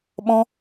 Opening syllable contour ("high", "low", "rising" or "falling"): high